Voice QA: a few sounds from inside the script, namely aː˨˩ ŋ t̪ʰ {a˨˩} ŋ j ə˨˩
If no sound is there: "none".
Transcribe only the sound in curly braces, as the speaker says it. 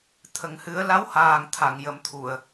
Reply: a˨˩˨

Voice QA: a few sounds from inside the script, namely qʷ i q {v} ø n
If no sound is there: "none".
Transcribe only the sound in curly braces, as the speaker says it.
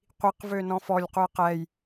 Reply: v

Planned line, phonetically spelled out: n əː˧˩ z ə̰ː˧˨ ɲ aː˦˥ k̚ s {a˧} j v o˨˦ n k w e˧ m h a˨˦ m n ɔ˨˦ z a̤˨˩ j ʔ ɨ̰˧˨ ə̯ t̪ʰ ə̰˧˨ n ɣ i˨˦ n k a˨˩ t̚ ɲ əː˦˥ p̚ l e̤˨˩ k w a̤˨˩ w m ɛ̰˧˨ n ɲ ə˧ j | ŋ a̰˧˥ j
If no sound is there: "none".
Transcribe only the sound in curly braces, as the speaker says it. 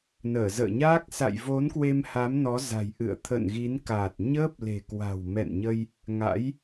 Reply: a̰˧˨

